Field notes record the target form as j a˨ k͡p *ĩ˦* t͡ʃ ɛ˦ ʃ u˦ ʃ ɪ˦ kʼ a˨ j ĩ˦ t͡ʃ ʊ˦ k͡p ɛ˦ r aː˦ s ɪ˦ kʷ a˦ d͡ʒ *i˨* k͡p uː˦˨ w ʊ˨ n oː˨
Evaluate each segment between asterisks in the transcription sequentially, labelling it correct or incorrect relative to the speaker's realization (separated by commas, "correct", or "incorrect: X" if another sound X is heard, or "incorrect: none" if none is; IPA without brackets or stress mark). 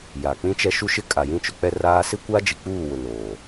correct, correct